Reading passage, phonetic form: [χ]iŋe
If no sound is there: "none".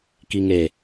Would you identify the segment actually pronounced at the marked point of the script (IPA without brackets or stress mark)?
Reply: k